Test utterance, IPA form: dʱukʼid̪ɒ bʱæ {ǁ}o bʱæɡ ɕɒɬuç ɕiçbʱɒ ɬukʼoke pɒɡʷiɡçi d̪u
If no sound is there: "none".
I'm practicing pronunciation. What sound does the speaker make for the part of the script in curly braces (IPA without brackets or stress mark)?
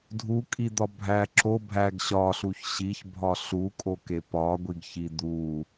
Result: ǁ